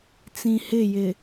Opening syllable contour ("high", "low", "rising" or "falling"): low